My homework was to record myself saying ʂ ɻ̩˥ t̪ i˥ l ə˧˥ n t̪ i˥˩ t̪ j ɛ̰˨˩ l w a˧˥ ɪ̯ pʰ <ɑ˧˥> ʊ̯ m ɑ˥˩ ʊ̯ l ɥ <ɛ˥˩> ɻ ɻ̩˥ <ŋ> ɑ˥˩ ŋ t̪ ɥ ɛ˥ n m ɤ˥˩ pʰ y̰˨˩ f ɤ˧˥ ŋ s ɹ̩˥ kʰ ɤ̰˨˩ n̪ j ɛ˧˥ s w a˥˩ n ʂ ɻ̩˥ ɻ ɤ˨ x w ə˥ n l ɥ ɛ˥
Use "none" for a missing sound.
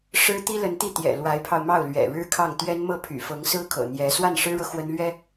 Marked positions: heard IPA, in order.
ɑ˧, ɛ̰˨˩, kʰ

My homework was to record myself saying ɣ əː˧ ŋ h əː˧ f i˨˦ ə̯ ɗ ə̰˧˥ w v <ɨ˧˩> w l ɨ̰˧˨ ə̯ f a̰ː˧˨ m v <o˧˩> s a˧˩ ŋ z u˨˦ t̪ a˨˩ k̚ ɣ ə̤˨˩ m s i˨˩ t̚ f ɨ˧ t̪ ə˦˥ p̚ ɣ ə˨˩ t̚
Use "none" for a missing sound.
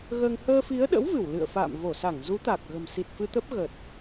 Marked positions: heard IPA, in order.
ɨ˧˩, o˧˩

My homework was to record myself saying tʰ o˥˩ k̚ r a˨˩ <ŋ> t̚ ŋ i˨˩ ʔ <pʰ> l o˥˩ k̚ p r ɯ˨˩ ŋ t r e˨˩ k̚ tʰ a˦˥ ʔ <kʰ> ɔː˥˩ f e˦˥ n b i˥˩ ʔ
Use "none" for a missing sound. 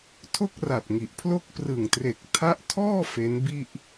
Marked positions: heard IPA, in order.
none, pʰ, tʰ

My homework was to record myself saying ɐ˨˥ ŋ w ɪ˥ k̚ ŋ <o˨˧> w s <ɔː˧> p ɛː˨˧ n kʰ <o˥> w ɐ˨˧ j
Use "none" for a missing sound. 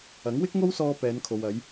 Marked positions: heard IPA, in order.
o˥, ɔː˧, o˨

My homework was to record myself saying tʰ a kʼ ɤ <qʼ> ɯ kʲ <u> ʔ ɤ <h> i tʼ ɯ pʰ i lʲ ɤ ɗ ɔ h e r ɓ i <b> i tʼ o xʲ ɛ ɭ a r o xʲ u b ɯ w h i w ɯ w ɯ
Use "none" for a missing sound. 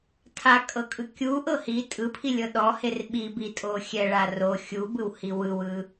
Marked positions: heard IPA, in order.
kʼ, u, h, b

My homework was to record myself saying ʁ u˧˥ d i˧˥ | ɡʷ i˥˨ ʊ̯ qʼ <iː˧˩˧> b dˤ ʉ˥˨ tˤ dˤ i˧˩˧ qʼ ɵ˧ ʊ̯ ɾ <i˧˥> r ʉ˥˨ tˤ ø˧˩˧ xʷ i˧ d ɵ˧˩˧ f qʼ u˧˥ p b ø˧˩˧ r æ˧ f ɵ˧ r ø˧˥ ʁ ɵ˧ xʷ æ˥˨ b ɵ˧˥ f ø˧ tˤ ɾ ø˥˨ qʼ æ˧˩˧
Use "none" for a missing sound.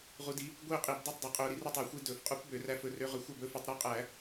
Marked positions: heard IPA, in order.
i˧˩˧, i˧˥

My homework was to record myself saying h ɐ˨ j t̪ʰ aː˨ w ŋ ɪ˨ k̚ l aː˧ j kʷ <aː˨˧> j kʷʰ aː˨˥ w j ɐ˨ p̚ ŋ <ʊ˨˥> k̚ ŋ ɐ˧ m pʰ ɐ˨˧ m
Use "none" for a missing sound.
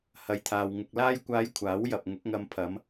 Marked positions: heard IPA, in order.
aː˨˧, ʊ˨˥

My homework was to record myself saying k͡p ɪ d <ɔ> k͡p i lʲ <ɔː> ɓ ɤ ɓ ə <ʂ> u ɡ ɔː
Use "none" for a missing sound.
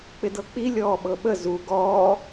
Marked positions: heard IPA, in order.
ɤ, ɔː, z

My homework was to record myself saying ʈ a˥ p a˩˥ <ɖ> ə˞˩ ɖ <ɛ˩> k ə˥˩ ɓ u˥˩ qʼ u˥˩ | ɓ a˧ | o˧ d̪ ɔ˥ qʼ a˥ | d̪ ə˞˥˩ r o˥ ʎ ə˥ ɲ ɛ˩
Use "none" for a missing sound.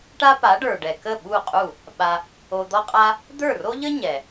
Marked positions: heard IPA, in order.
ɖ, ɛ˩

